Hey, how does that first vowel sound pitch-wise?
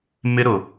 high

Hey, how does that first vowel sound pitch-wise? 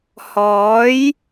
rising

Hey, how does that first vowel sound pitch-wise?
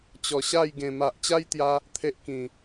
low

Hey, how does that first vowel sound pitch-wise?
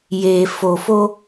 low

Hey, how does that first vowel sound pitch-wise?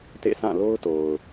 falling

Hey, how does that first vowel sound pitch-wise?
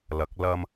rising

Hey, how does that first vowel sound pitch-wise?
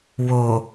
low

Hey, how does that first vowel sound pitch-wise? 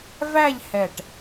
falling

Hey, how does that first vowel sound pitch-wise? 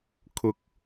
low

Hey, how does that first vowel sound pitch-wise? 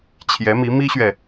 rising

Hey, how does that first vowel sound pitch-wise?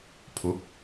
rising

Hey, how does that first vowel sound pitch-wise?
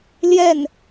falling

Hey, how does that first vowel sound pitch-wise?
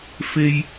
high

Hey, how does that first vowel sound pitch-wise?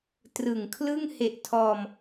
low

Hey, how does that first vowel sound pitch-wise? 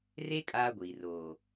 high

